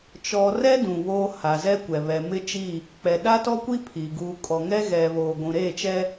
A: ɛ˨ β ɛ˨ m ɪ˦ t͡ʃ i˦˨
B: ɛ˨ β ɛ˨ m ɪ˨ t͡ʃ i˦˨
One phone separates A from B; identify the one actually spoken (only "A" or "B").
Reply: A